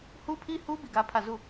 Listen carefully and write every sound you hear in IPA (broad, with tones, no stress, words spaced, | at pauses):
hu˦pʰi˦hu˦ bi˦˨ɡä˦pʰä˦˨ zu˦˨